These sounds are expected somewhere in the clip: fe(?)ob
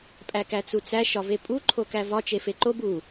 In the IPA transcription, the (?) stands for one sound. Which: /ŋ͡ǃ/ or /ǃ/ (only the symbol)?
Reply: ǃ